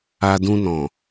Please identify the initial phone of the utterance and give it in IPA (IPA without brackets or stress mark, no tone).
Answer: a